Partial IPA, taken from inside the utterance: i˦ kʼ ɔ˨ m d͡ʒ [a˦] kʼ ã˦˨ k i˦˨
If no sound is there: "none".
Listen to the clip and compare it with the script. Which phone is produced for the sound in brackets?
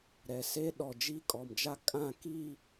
a˦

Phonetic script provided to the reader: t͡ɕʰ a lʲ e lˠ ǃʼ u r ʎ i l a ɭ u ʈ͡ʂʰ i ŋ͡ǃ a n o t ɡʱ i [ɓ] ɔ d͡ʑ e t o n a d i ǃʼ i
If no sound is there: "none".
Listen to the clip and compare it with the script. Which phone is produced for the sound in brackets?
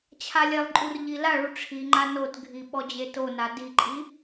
ɓ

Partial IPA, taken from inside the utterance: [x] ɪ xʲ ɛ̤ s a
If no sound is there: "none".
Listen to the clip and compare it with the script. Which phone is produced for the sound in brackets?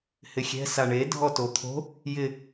h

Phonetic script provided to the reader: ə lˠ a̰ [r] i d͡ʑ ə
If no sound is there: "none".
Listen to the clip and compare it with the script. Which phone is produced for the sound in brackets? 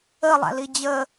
l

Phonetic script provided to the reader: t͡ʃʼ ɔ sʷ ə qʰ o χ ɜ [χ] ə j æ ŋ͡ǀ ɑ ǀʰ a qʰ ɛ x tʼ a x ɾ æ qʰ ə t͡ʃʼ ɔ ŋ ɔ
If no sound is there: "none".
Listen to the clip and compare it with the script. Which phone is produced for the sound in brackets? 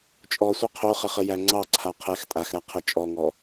χ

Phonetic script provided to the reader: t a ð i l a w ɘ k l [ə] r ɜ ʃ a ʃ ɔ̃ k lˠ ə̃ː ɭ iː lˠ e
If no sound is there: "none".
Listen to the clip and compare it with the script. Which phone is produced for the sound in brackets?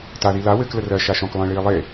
ə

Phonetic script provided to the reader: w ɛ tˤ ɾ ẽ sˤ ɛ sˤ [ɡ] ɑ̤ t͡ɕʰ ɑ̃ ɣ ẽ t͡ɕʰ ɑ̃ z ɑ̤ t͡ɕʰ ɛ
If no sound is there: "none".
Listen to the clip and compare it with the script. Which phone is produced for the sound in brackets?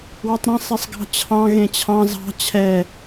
ɡ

